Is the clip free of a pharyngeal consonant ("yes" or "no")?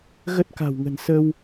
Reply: yes